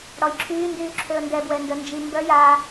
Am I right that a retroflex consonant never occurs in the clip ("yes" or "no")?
no